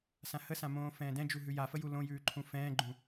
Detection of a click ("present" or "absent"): present